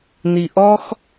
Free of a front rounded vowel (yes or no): yes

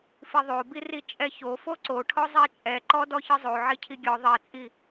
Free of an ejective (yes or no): no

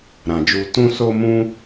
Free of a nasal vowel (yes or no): no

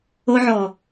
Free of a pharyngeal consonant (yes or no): no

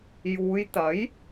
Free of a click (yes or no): yes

